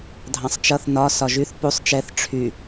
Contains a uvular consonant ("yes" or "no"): no